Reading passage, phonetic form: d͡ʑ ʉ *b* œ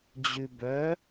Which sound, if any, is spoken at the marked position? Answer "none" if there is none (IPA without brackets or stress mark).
b